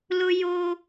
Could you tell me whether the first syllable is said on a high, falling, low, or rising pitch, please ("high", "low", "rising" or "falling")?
high